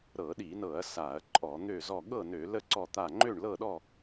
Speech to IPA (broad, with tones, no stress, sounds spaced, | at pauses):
ɾ ɤ˧˩˧ ɗ i˧˩˧ n ɤ˧˩˧ ɐ̯ s a˧˩˧ ɐ̯ ǃʼ ɔ˧˩˧ n̪ ø˥˨ z ɔ˥˨ ɠ ɤ˥˨ n ø˧˩˧ l ə˥˨ ǀ ɔ˥˨ t̪ a˥˨ ŋ͡ǃ ø˥˨ ɳ l ɤ˥˨ ɗ ɔ˥˨